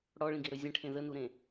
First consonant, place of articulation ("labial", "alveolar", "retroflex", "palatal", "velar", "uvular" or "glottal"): retroflex